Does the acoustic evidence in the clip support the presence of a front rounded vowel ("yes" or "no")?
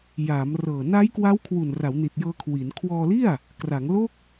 no